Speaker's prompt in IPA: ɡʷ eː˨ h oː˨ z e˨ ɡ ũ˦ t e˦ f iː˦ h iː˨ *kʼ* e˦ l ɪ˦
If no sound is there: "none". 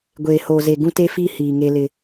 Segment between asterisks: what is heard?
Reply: ŋ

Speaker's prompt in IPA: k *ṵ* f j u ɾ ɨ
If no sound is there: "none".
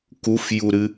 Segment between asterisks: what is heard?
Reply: u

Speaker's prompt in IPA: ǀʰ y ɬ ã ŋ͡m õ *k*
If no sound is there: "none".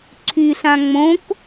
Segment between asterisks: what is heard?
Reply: k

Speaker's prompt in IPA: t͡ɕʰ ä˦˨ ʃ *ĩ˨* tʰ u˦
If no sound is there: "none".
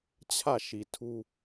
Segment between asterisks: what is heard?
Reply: i˨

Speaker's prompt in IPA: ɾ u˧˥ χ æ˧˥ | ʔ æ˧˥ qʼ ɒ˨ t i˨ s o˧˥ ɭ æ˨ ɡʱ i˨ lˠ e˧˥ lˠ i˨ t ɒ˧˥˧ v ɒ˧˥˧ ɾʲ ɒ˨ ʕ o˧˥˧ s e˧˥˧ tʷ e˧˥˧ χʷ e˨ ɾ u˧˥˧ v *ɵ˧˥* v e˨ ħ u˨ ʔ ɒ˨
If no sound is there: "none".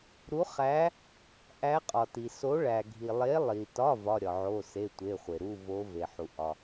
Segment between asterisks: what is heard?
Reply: o˧˥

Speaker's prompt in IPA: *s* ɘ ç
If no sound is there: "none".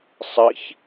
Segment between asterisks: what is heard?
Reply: sˤ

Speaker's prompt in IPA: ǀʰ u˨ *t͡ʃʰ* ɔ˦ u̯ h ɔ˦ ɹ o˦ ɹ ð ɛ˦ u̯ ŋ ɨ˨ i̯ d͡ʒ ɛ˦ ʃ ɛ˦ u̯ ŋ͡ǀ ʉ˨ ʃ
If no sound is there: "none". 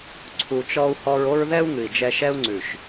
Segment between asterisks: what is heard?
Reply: t͡ʃ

